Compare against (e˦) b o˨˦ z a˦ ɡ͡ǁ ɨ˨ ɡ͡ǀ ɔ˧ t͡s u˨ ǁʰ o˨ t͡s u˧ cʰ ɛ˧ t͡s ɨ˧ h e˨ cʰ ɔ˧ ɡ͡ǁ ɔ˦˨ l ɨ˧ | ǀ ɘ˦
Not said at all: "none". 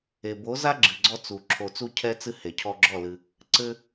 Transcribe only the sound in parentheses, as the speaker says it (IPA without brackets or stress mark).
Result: e˨